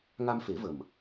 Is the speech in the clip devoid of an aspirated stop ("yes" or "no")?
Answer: yes